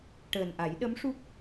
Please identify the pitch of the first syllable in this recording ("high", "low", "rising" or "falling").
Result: low